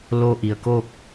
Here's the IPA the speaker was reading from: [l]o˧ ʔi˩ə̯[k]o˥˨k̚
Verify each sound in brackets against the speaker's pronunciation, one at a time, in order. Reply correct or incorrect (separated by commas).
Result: correct, correct